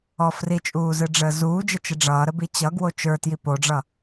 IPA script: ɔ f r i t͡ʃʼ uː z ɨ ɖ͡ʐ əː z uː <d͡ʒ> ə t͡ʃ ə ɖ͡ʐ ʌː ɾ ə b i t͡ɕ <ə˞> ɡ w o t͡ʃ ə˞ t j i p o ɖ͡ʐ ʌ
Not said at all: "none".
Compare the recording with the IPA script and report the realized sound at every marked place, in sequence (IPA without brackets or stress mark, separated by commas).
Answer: d͡ʒ, ʌ